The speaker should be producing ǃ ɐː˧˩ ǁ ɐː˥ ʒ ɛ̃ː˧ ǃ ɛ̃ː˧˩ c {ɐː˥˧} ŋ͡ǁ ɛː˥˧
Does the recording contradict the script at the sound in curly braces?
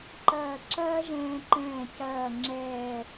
no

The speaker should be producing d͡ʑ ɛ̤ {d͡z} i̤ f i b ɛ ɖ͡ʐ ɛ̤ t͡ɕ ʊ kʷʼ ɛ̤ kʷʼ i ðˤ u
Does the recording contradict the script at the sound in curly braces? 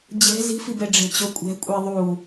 yes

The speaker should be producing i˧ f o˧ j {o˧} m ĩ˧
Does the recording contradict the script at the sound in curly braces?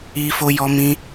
yes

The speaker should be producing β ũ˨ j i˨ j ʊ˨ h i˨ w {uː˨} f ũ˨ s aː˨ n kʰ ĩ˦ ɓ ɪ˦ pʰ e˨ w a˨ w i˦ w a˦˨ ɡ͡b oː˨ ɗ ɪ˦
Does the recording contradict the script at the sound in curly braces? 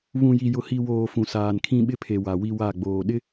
yes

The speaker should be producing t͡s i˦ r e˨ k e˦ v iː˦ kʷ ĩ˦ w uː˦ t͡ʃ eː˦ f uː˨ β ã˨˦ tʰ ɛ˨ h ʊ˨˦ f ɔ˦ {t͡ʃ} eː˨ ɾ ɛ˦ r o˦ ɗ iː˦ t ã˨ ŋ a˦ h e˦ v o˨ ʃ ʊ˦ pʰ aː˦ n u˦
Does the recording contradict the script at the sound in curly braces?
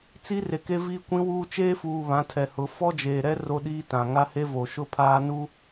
yes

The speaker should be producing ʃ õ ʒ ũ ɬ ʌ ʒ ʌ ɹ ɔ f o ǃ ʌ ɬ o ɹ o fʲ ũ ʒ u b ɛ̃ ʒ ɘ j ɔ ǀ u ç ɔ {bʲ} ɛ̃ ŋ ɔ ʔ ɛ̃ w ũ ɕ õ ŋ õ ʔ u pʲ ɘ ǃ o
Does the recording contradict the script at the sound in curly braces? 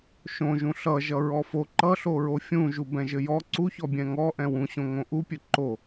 no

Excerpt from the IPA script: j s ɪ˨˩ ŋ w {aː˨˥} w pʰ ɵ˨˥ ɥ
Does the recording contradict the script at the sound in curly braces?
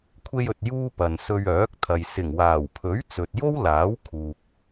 yes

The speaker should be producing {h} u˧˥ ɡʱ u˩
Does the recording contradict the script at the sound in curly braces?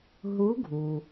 yes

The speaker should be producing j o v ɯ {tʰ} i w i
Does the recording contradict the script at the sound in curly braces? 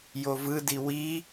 yes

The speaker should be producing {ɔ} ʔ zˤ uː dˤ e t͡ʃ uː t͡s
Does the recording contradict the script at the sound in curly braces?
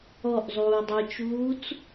no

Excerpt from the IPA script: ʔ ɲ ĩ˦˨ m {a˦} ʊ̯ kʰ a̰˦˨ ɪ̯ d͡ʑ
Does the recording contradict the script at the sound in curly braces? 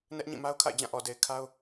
no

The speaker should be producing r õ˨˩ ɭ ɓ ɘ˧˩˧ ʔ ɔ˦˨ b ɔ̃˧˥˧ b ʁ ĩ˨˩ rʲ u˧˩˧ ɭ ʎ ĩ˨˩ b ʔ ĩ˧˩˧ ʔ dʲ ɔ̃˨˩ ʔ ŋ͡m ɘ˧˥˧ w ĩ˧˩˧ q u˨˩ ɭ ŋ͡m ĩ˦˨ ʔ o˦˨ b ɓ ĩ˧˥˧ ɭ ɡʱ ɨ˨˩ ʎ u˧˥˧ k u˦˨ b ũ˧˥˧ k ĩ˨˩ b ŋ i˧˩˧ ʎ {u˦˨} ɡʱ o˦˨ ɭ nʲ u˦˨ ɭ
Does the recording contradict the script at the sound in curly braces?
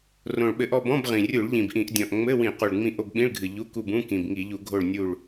yes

